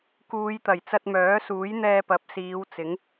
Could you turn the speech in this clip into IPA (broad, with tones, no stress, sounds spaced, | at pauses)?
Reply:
k uː˨˧ j t̪ ɐ˨˩ j t͡s ɐ˧ t̚ m œː˨˥ s uː˨˥ j n̪ ɛː˧ p ɐ˨˥ p̚ s iː˨˧ w t͡s ɪ˨˥ ŋ